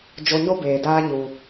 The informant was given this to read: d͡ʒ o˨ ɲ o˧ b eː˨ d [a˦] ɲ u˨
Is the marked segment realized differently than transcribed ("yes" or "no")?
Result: yes